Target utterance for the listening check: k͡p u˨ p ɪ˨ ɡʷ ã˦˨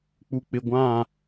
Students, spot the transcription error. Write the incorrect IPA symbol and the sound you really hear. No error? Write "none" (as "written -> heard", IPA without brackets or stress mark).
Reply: p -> k͡p